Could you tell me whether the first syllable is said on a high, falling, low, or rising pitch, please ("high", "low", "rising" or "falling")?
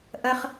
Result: high